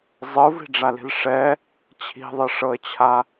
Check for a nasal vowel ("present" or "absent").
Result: absent